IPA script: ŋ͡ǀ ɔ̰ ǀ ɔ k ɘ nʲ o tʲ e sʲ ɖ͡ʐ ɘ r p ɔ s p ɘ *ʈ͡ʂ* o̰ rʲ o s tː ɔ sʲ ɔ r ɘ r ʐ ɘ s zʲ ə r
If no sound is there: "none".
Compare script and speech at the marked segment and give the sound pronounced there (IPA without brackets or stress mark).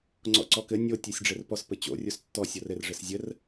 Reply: t͡ɕ